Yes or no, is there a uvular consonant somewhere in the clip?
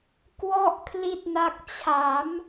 no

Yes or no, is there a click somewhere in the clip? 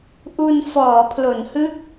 no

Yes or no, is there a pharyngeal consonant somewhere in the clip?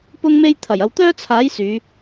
no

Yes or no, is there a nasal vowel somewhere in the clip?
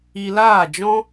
yes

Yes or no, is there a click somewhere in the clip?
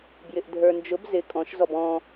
no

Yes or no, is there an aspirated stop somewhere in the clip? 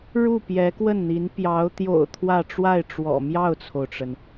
yes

